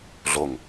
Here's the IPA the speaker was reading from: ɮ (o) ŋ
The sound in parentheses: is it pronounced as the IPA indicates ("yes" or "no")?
yes